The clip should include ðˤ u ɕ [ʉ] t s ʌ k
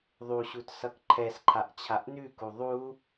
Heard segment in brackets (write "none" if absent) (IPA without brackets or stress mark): u